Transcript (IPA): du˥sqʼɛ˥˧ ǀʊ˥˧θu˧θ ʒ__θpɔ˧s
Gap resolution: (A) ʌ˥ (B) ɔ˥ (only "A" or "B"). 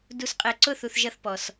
A